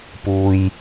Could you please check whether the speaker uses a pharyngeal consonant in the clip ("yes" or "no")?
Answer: no